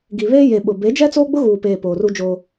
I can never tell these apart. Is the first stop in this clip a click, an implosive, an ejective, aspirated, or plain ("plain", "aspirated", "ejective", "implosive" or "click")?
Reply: plain